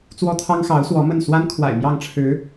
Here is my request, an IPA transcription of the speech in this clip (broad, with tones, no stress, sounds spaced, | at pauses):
t͡s w ɔ˥ t̪ʰ ɑ˥ ŋ x ɑ˧˥ ʊ̯ s w ɔ˧˥ m ə˥˩ n s w a˥ n kʰ w a̰˨˩ ɪ̯ m j ɑ˥˩ ŋ ʈ͡ʂʰ ɻ̩˧˥